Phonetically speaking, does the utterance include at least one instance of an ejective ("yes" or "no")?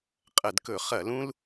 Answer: yes